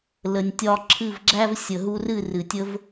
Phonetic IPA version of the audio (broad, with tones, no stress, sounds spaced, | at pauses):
l ə˧ nʲ tʲ ɒ˦ ǁʰ ɨ˦˨ v ɡ͡ǁ æ˦ v sʲ ə˨ ɦ u˧ r ɨ˦˨ r ɨ˨ tʲ ə˦ v